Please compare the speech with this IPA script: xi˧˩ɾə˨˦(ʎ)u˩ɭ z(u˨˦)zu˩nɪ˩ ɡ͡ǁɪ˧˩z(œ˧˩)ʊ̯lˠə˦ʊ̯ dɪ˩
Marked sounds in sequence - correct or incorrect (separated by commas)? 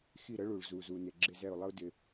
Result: incorrect, incorrect, incorrect